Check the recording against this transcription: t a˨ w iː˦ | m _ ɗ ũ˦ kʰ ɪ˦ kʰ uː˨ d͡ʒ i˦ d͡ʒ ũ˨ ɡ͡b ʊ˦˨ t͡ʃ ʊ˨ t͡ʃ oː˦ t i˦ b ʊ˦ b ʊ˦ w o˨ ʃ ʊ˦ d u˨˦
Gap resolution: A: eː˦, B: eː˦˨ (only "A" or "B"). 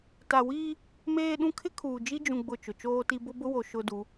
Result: A